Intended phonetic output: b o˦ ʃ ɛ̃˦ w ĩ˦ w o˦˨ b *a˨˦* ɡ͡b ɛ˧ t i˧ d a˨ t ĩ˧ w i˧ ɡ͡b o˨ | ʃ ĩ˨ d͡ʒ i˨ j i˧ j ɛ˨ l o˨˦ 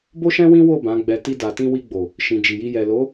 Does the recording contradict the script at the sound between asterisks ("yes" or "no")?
yes